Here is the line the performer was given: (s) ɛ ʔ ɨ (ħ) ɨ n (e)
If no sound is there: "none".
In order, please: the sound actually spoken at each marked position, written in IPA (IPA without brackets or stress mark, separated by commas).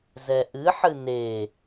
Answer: z, ħ, e